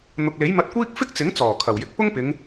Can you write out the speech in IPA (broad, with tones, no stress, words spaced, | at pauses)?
n̪ʊ˨k̚le˨˥jmɐ˧t̚kʷiː˥k̚ fɪ˥k̚t͡sɪ˨˥ŋt͡sɔː˨˩ kʰɐ˨˩wjɪ˨˥k̚ pʊ˥ŋpɪ˨˧ŋ